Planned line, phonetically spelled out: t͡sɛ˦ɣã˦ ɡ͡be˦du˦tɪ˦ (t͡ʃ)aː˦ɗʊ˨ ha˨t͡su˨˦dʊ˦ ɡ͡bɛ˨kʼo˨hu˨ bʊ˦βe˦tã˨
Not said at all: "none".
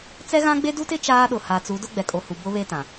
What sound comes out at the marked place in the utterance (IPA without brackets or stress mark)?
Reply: t͡ʃ